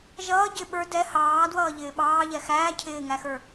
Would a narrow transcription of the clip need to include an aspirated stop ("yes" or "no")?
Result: yes